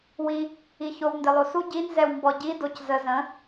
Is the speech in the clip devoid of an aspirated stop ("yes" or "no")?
yes